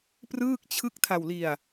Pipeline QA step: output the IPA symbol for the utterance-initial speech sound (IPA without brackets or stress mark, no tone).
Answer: p